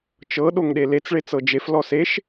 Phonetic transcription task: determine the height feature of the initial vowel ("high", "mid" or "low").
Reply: mid